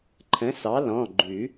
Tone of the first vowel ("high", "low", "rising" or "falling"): rising